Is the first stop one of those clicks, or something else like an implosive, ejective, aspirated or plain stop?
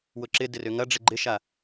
click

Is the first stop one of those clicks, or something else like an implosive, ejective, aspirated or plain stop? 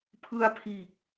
aspirated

